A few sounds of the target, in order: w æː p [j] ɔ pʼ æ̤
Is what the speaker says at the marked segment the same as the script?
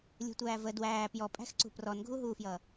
yes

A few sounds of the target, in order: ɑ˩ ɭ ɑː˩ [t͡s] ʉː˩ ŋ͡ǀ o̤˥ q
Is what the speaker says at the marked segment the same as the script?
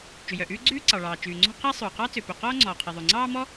no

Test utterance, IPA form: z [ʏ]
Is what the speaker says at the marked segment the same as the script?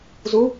no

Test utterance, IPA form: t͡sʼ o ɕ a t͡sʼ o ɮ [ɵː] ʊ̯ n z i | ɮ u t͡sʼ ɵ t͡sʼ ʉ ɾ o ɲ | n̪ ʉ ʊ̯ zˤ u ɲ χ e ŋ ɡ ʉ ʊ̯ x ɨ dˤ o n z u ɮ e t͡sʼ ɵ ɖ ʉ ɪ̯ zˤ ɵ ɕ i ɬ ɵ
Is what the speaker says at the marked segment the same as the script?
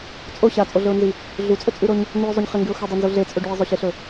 no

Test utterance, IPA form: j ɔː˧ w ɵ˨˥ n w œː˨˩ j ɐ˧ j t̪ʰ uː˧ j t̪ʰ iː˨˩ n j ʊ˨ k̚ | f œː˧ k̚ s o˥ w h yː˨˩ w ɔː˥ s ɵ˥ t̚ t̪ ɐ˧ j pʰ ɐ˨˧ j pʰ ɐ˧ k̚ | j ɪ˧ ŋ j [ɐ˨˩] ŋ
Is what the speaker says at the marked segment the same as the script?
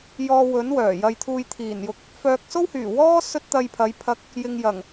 yes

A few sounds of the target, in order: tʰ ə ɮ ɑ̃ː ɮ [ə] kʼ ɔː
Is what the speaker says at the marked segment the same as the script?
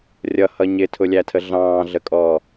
yes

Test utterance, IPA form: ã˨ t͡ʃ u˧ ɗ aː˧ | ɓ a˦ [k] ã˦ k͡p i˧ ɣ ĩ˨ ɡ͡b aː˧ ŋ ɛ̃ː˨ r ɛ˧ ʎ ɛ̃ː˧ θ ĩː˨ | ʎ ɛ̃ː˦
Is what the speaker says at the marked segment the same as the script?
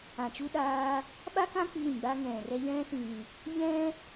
yes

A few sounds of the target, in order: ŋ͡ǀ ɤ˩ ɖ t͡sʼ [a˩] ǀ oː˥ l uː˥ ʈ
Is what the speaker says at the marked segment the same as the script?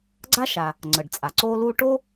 yes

